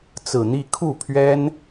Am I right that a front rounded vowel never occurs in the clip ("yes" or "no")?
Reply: yes